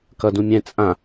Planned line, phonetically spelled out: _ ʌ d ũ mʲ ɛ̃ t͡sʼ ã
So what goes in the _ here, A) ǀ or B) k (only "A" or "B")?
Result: B